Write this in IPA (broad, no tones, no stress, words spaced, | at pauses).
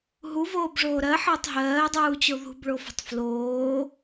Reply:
ɦuvoːbʐoː ɾɜħəːtˤ ɦɜːdˤuːt͡ɕo ðṳbɭofə̤tˤ floː